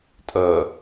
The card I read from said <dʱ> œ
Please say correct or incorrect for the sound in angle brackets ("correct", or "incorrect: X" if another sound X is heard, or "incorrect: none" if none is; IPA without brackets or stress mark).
incorrect: tʼ